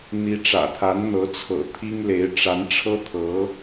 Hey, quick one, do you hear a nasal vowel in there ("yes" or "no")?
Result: no